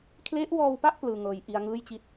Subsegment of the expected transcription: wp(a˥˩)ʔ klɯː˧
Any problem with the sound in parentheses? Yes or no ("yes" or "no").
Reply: no